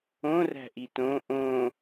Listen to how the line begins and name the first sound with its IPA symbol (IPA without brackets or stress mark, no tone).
õ